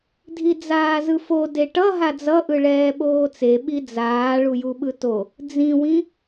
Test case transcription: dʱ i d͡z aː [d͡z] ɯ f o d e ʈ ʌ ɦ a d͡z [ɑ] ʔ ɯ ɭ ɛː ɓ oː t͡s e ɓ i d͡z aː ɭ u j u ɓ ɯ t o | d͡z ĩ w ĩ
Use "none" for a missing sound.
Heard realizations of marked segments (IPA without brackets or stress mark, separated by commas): z, ʌ